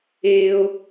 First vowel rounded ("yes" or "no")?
no